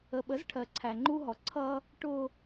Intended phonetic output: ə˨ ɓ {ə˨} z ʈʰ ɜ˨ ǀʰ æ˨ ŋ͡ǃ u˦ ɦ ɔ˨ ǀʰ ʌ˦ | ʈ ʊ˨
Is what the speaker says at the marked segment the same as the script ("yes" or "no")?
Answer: no